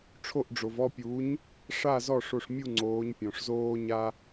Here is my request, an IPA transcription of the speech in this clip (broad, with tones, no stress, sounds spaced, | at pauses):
ʈ͡ʂʰ o˧˩ ʔ ɖ͡ʐ o˩ v ɔ˥˨ pʲ uː˩˥ ɲ | ʂ a˥˨ z ɔ˥˨ ʂ o˧˩ ʂ mʲ u˥˨ ŋ͡ǀ oː˩˧ ɲ pʲ ɔ̃˩ ʂ z oː˦ ɲ a˦